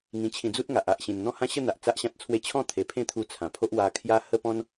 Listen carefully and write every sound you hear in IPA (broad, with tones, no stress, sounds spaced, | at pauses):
ŋ ĩ˧ t͡ɕʰ ĩ˧ d͡z u˦ t̚ ŋ a˨ ʔ a˨ ʔ ɕ ĩ˨˩ n n̪ ɔ̃˦ h ã˦ ɕ ə˥˧ n̪ a˨ ʔ t͡s a˦ ʔ ɕ ã˦ t̚ t͡sʰ w e˦ t͡ɕʰ ɔ̃˥˧ t̪ʰ e˨˩ pʰ ẽ˥˧ t̪ʰ u˧ t͡sʰ ã˨˩ pʰ o˦ ʔ w a˧ kʰ j a˦ h ə˥˧ p ɔ̃˦ n